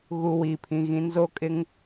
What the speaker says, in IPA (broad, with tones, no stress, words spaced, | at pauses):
ɣu˨ wiː˨pʰĩ˨ɣĩ˨˦n zo˦kʼɪ˦ŋ